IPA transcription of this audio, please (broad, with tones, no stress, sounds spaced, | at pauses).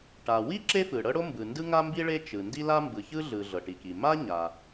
ʈ a˩ w i˥ ǁ e˥ f ɯ˩ ɽ ɤ˥ ɽ o˥ m b ɯ˩ n d ɯ˥ ŋ a˥ m b i˥ ɭ e˥ t͡ʃ ɯ˩ n d i˥ l a˥ m b ɯ˩ ç ɯ˥ ɮ ɯ˩ ɮ ɤ˩ ʈ i˩ k i˩ m a˥ ɲ a˩